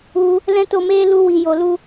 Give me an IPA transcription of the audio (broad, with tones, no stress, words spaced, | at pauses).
u˧ | lɛ̃˦to˧meː˦ lu˧wi˨jo˨lu˧